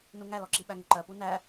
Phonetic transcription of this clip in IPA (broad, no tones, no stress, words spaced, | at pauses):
nuŋælɔǁi ɓæŋəǃɜ punæ